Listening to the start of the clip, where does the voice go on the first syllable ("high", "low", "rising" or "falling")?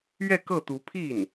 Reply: falling